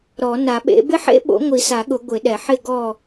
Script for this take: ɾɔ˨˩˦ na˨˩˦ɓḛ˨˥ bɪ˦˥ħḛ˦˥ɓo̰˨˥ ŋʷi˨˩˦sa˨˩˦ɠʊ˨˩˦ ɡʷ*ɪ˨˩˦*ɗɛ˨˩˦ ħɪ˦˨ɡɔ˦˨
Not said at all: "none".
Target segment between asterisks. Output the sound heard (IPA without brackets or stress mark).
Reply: ɪ˨˩˦